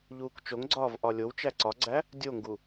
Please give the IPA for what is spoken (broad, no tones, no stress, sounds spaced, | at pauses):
ʎ uː k t͡ʃ o ŋ ɡ͡ǀ ɒː v ʔ ɒ lʲ o w t͡ʃ æ ǀ ɒ ɡ͡ǀ æ | dʲ o ŋ ɡ u